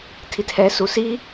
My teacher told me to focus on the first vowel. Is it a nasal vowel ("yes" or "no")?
no